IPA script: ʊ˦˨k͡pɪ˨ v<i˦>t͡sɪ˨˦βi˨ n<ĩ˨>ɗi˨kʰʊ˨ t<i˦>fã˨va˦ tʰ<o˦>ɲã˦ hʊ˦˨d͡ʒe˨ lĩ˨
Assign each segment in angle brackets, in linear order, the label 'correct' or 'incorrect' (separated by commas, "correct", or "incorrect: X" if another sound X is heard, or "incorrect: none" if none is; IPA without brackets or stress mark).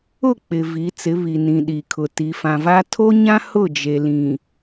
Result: incorrect: i˨˦, correct, incorrect: i˨, correct